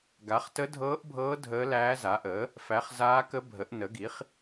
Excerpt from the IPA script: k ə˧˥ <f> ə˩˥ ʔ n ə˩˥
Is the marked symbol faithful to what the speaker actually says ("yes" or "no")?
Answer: no